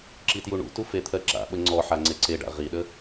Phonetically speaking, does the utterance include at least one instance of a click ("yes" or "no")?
yes